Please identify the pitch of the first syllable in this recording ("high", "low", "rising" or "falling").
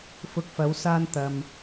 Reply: rising